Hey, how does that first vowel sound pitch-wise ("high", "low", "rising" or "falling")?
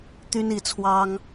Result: high